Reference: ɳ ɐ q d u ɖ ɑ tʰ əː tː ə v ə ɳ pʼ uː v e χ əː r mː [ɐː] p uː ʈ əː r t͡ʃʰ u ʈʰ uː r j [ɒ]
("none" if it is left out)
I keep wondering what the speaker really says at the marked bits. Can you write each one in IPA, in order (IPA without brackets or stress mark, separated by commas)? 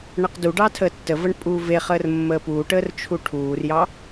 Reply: əː, ɑ